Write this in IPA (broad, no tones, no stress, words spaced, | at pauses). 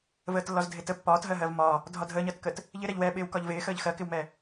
vəːtlːɒzdʱɪtə pːɒːtɦɜɦɜv mɒ | dʱɒdʱəːɲɜtkət | ʎɪ ɾɛʎwɛɓɪːw kɒʎvɪː xəːʎxɜkɪwmɛ